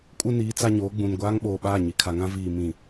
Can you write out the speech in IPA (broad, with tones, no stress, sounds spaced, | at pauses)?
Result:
kʼ u˦ n iː˨˦ t͡s a˦ ɲ oː˨˦ ɡ͡b ũ˨ n ɡʷ aː˦ ŋ ɓ oː˨ ɓ aː˦˨ ɲ i˨ kʰ a˨ ŋ ã˦ v iː˨ m ĩ˨